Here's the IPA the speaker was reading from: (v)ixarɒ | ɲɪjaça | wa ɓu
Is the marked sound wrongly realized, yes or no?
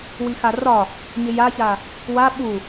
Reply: yes